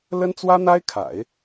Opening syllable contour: high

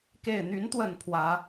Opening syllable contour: low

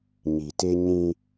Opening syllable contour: low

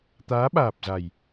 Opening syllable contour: rising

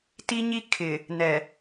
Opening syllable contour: high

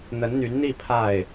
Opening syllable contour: rising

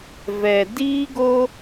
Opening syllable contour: low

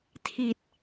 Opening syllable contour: low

